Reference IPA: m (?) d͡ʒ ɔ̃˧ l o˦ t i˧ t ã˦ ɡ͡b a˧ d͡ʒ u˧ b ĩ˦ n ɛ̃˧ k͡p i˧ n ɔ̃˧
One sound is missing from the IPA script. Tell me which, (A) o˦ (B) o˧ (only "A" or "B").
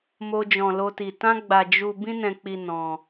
A